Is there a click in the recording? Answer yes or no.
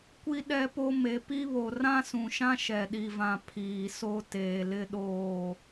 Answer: no